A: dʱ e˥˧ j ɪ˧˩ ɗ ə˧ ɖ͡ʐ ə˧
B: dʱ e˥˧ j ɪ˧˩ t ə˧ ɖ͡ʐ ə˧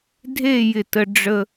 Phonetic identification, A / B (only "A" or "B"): B